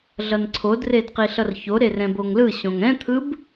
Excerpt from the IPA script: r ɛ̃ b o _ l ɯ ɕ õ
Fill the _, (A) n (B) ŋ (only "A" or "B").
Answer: B